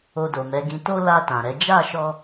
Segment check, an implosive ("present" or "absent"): absent